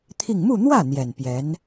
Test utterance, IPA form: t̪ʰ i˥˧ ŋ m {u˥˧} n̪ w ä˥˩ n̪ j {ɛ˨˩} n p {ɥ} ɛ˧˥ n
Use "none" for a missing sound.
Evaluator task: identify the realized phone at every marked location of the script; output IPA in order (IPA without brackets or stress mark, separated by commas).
u˥˧, ɛ˨˩, j